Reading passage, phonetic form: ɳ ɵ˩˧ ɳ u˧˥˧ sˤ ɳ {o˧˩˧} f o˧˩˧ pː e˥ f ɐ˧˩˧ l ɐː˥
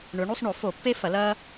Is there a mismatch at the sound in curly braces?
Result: no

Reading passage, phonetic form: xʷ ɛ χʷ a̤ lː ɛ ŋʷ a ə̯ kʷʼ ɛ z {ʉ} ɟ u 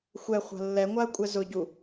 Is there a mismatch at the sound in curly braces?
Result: yes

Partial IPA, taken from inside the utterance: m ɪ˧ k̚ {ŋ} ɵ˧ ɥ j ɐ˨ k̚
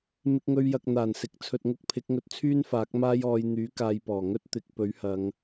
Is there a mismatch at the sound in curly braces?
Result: no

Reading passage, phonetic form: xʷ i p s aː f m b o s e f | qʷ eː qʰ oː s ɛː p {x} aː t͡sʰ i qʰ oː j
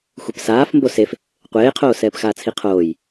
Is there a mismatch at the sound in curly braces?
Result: no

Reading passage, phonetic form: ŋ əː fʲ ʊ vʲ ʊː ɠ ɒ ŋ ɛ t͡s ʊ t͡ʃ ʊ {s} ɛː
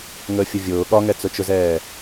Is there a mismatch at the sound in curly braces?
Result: yes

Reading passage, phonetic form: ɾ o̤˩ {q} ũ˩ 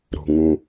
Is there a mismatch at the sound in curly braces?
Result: yes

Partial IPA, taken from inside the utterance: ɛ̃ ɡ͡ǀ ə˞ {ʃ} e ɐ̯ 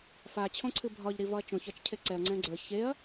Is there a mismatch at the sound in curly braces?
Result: yes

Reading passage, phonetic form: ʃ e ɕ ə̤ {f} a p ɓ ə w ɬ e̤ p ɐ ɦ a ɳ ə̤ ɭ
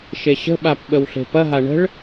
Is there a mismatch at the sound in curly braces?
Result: yes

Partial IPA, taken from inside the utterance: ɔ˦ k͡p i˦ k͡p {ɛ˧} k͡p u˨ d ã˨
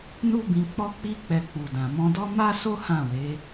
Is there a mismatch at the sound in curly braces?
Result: no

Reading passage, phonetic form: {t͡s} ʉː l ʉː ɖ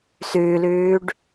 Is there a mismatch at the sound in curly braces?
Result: yes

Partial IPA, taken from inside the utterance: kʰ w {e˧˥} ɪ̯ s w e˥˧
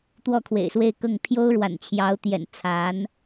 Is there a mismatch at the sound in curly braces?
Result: yes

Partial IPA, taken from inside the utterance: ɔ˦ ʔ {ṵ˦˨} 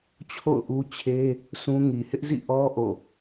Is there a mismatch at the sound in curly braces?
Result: yes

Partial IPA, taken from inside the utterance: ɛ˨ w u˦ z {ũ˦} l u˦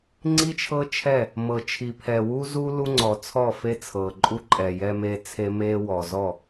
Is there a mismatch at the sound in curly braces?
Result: yes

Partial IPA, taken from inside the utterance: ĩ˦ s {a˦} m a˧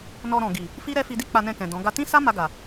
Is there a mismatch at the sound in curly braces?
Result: no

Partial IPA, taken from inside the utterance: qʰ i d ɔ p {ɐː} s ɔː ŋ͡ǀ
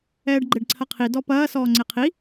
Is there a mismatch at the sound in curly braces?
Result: no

